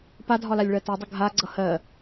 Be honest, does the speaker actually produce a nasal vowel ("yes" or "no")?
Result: no